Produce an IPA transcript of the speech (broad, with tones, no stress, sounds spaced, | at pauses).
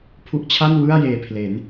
pʰ u˦˥ ʔ t͡ɕʰ a˥˩ n w ɯ˥˩ a̯ j eː˨˩ pʰ l e˩˦ n